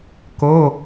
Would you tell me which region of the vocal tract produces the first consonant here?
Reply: velum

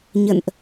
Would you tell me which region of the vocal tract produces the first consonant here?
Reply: palate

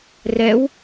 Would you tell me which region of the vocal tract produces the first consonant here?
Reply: tongue tip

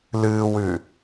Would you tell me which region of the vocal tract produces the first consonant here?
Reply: tongue tip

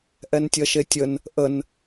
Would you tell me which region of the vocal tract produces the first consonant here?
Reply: throat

